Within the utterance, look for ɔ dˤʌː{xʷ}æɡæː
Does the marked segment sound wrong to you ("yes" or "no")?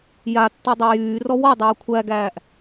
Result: yes